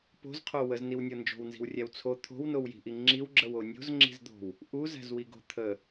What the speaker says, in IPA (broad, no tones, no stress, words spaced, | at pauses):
po̤zqʰo wəzniwnʲɤ nd͡ʒo̤wnzi̤wrʲæw t͡sʰo t̪ʰo̤wnowji̤ʔi ŋ͡ǁiwɡ͡ǁəwo nʲo̤zŋ͡ǁi̤zd̪o̤w | ʔuzæ̤zwiɡo̤ t̪ʰə